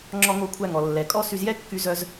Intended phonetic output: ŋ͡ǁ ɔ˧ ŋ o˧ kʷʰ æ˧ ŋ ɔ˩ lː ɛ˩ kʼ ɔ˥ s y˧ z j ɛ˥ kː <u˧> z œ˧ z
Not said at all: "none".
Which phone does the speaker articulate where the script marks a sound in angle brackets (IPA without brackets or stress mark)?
y˧